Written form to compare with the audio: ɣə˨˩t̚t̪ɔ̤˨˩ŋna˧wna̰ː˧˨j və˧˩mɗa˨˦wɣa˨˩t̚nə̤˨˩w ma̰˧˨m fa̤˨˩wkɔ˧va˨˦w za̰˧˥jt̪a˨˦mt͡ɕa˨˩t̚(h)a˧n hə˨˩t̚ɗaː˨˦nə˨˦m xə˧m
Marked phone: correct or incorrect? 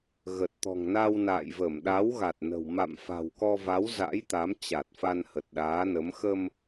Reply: incorrect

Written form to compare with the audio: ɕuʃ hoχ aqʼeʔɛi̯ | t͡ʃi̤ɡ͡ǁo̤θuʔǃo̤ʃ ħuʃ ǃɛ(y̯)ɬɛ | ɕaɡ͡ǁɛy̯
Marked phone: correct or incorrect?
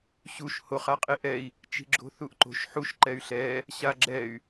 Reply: correct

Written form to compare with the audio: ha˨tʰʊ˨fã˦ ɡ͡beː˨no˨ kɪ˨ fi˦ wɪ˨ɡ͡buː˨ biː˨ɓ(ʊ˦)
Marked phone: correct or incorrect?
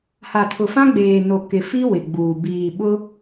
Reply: correct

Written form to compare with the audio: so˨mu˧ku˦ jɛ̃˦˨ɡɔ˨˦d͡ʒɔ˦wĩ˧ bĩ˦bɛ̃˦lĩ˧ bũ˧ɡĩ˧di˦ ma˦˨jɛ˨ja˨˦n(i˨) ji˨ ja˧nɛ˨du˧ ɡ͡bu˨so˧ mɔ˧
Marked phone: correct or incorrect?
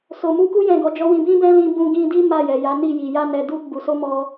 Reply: incorrect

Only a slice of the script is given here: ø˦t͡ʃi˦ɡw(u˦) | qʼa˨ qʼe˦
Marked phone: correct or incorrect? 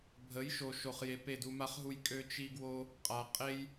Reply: incorrect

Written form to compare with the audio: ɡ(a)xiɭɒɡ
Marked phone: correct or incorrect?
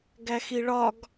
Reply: incorrect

